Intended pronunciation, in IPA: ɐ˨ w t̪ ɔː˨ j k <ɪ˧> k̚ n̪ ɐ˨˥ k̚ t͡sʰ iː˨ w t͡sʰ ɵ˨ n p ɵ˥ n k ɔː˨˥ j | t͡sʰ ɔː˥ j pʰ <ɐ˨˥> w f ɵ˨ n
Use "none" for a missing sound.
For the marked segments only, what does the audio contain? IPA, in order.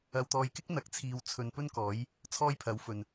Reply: ɪ˥, ɐ˨˥

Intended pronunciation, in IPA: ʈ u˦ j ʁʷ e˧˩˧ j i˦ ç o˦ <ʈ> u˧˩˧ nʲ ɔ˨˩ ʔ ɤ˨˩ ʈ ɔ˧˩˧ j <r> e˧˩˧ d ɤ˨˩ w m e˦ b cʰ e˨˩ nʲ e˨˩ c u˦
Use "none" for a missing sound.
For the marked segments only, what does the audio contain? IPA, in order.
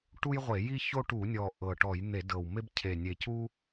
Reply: ʈ, n̪

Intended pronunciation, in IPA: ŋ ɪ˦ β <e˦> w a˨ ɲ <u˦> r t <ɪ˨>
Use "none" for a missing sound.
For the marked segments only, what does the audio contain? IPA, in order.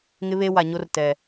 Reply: e˦, o˦, ɛ˨

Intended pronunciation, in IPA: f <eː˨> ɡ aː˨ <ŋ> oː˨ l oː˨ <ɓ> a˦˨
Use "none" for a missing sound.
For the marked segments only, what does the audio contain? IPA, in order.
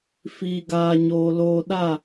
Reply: iː˨, ɲ, ɗ

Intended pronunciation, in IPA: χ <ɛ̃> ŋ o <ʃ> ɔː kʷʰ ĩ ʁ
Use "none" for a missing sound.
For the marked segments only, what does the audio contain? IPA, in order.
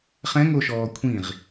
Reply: ɛ̃, ʃ

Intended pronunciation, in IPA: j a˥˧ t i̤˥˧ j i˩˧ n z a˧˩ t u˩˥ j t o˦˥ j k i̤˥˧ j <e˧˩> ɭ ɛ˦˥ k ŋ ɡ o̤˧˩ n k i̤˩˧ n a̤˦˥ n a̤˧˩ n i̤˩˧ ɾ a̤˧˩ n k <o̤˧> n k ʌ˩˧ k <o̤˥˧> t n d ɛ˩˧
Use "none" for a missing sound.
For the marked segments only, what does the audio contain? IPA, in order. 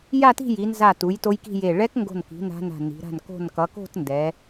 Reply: e˧˩, o̤˧˩, o̤˥˧

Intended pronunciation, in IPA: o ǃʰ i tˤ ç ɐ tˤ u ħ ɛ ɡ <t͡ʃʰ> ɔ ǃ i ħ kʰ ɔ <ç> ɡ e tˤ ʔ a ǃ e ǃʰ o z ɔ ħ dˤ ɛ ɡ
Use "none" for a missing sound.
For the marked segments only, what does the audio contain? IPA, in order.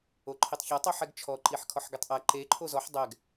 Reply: t͡ʃʰ, ħ

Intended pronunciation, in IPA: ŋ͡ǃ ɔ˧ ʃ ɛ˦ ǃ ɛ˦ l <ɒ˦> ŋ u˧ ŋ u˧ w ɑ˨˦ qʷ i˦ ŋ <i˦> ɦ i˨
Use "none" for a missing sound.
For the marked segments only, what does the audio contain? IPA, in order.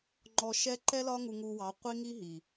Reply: ɒ˦, i˦

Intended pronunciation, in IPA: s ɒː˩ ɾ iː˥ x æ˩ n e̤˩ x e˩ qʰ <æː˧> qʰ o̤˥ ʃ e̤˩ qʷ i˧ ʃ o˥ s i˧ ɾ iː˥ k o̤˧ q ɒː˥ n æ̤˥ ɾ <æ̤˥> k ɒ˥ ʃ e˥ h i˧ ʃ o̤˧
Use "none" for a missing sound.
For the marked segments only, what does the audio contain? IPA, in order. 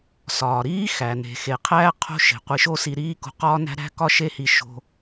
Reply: æː˧, æ̤˥

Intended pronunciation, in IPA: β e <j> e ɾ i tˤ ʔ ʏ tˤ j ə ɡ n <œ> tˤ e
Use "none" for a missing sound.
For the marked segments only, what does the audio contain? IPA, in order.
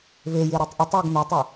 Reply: j, œ

